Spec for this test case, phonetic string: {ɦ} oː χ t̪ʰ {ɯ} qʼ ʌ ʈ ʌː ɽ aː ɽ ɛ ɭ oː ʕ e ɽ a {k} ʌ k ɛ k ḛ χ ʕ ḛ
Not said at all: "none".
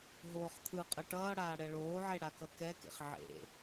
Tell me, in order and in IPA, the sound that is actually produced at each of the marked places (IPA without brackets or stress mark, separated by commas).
ɦ, ɯ, k